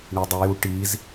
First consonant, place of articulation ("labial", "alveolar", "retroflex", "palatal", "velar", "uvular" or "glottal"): retroflex